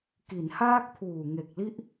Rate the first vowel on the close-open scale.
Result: close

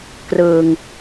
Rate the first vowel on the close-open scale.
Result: close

